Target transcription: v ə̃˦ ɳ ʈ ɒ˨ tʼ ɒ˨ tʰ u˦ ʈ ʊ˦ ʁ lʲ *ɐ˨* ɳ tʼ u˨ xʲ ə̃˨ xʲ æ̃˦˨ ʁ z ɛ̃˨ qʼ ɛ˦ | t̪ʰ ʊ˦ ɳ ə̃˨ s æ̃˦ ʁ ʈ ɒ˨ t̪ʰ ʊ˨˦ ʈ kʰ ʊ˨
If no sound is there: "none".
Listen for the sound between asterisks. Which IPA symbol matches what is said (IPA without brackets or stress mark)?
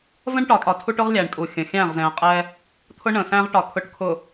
æ˨